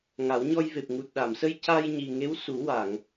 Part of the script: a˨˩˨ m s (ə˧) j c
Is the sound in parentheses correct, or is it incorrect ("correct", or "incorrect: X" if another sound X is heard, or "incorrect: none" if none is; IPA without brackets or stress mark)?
correct